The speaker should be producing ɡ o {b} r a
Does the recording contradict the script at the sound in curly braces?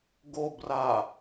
no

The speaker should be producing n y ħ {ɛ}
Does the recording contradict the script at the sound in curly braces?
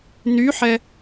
no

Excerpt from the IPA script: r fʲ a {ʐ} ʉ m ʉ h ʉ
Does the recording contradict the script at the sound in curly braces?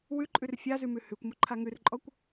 yes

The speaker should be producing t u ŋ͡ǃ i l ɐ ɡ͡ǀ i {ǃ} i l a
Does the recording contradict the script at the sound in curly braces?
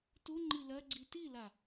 yes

